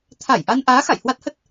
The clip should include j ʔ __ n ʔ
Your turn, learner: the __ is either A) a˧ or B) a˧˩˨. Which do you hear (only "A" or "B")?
A